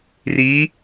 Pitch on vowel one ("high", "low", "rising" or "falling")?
rising